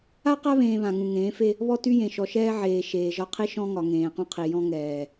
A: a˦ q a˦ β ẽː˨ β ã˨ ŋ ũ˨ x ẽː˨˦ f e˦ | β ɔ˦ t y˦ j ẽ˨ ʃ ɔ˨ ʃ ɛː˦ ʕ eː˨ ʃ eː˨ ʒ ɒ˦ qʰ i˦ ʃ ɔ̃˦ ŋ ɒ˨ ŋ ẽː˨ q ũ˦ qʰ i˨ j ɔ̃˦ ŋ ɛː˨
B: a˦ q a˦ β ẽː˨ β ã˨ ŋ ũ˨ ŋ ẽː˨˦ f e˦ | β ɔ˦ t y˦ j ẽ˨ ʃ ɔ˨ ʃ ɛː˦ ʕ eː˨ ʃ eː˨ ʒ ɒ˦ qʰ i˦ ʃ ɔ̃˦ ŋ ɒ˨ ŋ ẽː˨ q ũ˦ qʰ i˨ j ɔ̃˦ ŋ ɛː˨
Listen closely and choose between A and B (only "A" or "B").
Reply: B